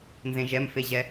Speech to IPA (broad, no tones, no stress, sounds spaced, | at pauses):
n z ẽ ʒ ɛ m f e ʑ ɛ